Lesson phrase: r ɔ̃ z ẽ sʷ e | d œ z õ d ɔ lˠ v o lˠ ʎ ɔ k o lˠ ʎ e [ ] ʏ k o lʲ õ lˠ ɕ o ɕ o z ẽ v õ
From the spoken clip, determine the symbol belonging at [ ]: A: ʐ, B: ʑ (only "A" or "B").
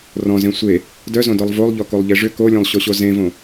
A